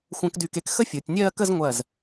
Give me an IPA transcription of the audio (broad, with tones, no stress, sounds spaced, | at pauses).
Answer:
xʷ ə̃ː˧ k d y˧˩ k e˧ k x ə˥ fʲ ʊː˩˧ tʲ nʲ ɜː˥˧ k ə˥˧ z ŋʷ ɜ˧˩ z